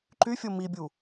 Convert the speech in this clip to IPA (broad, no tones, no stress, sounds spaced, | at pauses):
ǃ y fʲ o m i bʲ u